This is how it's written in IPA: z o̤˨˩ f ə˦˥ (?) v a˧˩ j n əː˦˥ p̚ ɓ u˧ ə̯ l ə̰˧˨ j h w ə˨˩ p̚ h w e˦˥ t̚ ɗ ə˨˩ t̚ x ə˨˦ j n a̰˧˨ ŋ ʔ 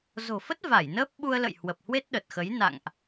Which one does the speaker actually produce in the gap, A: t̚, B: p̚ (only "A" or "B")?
A